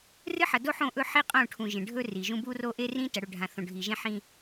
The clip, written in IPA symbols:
rɨ˦ ħɐ˨do˦ħõ˦˨ʔɵ˦ ħi˦qʼõ˦˨ʈʰũ˨ ʒẽ˨ɖʱɵ˦ri˨ʒũ˦ bu˦ro˦ ʔe˦rĩ˦ tɐ˨ɽɵ˨ ɖʱã˨θõ˨ɖʱi˨ʒẽ˦ ħĩ˦

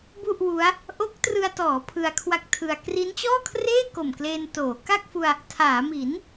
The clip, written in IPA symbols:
bu˥˩ʔwu˦˥a̯ | ʔo˦˥k̚trɯ˧a̯tɔː˩˦ pʰɯ˧a̯kʰwa˦˥k̚ tʰɯ˧a̯ kri˦˥nt͡ɕɔː˥˩kʰreː˥˩ ko˨˩mkleː˧ntoː˩˦ ka˥˩k̚fu˧a̯ | tʰaː˩˦mi˩˦n

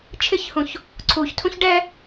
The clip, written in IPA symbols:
t͡ʃʰɪçhũç | ǀʰuçtʰũç ɖɛ

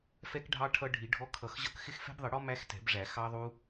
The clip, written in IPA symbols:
fɛ˦˥kɖʱɑ˦˥ ʈʰʌ˦˥ɖʱi˨˩˦ɖʱɔ˦˥ kʰʌ˨˩˦xʑʌ˦˥k xɪ˦˥xfɛ̤˦˥bðˤɪ˨˩˦ɽɔ˦˥ mæ˦˥xtɛ̤˨˩˦bʐæ˨˩˦ xɑ˦˥ ðˤu˦˥

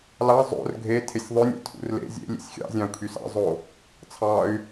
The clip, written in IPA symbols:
lɑ zˤo̰r ɡʱe tʰesʲðˤønʲɑ̰ tʰṵrlḛ zʲḛ lʲḛsʲxʲɑ̰zʲɑ̃u̯ kʰysɑ̰zˤo | t͡sʰɑy̯

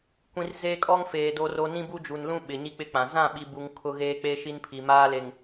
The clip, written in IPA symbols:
kʷĩ˨r zeː˦kʼɔ˦ŋfeː˨ do˨ro˨ nĩ˦bu˦d͡ʒu˨nlũ˦ ɓɪ˨ɲi˦k͡pɪ˦k͡pã˨ zã˦˨ɓi˨bu˨ŋ kʰʊ˦ɣeː˦ k͡pe˦ ʃi˦npʰi˨maː˦le˨ŋ

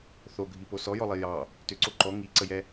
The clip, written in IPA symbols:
θoɡʱipo sɔjɔlˠi jɑ | tʏǀo ǃɔ ŋiǀəjɛ

